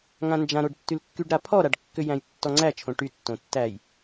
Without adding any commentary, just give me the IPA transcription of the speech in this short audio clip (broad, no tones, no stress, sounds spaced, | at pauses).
ŋ ã n d͡ʒ ã ɾ o ɖ tː y l kː y ɖ ɾ a pʰ ɔ ɾ a ɖ kː ʏ j æ̃ j tː ɔ ŋ͡ǀ æ t͡ʃʰ õ ʈ y tː õ tː æ j